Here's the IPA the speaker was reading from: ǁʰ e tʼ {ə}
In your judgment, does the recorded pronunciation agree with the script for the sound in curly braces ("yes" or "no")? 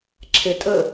yes